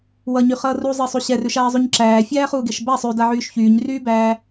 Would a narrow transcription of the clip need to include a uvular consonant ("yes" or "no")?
yes